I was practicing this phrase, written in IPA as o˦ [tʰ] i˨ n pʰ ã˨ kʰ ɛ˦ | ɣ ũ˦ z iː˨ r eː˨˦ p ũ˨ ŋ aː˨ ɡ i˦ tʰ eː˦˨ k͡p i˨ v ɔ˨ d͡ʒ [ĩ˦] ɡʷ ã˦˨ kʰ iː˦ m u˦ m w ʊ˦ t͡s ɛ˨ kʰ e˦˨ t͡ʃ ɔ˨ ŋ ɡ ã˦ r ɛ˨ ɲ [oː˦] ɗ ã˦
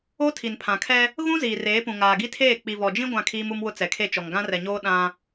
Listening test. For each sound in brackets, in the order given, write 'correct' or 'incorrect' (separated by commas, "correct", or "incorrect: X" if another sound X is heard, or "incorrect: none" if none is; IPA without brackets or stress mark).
correct, correct, correct